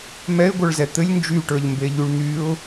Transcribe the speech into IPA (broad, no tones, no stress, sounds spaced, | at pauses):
m ɛ ɪ̯ ɡʷ ə˞ ɭ z ɛ t̪ ɘ lʲ n d͡ʒ y ʈ ə˞ ʎ m b e ʎ y ɭ n̪ y ʊ̯